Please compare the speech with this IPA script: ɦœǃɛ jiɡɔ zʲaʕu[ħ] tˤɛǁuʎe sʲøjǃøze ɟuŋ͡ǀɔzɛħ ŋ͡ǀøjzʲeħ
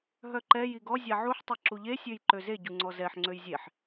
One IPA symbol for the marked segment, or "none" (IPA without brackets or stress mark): ħ